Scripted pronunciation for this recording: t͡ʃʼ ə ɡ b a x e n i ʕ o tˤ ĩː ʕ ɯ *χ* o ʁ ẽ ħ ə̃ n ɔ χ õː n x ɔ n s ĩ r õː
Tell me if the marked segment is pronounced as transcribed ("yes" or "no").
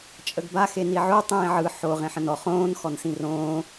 no